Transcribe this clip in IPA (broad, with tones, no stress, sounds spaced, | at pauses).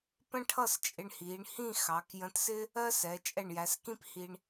p ə̃˥ ʈʰ ʌ˥˧ s t͡ʃʼ ɪ˧ ɳ h iː˩˧ ɳ h ĩ˥˧ x ɑ˩˧ k j ə̃˧ t s ɪ˥ | ɜ˥ s ɛ˩˧ t͡ʃʼ ɛ˧˩ ɳ j æ˩˧ s k ĩ˥ p h i˧ ɳ